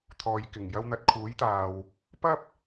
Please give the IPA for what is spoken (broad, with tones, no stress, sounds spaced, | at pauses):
t̪ʰ ɔː˨ j k ɪ˨˩ ŋ j ɐ˧ w n̪ ɐ˨˥ t̚ kʰ uː˨˥ j t̪ aː˨ w | p ɐ˥ p̚